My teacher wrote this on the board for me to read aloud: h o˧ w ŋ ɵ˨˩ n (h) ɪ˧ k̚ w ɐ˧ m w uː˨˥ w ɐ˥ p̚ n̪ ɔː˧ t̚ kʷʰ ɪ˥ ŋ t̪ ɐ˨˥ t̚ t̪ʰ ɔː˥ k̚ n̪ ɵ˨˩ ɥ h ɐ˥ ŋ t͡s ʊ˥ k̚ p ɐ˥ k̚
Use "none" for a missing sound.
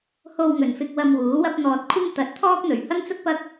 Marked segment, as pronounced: f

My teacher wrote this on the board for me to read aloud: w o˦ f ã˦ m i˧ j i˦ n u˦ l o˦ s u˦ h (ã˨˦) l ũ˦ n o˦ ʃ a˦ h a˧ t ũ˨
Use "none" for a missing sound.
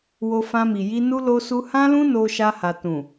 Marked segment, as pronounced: ã˦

